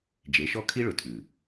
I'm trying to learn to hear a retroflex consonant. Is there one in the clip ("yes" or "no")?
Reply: yes